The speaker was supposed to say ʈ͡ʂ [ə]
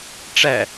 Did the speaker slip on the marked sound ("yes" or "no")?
yes